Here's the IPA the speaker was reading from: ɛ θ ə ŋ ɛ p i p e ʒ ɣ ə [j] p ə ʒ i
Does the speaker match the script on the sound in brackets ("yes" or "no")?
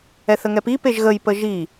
yes